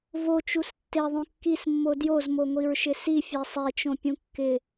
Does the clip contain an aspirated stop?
no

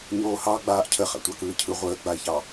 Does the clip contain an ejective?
no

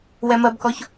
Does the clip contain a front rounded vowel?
no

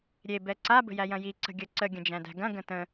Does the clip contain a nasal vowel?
yes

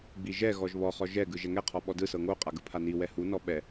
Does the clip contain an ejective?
yes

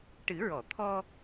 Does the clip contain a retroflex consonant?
yes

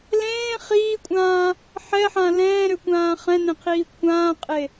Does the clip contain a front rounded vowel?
yes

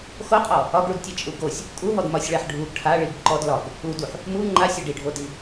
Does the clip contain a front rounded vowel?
no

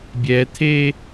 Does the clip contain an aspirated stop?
yes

